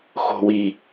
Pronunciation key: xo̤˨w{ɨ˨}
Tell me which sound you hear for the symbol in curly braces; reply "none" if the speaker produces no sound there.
i˨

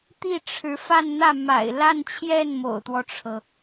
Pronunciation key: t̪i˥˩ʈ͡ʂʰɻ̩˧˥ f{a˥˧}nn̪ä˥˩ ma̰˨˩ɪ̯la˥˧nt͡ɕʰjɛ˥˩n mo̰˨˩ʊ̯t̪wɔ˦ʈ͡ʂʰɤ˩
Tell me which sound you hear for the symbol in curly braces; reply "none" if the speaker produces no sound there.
a˥˧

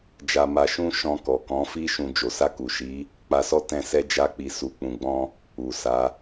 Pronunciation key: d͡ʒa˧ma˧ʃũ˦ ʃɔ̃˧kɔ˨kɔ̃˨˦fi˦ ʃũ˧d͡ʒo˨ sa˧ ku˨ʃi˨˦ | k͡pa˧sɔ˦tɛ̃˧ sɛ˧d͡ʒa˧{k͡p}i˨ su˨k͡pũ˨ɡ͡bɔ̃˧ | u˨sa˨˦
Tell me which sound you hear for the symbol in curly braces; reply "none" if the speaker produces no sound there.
k͡p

